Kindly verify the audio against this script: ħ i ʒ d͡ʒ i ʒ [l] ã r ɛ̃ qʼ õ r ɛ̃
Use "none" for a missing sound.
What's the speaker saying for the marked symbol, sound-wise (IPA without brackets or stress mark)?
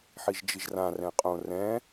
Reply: r